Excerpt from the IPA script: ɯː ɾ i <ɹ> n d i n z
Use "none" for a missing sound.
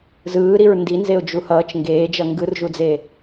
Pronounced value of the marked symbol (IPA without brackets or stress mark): ɹ